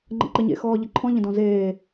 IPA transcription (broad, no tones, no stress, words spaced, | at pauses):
ŋ͡ǃə̰ǃɘɲḛ xɔːʎɘǃʰɔ̃ ʎə̃dɔ̃zeː